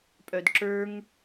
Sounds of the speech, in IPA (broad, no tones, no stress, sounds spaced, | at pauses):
pʼ œ d ǁ ə˞ ŋ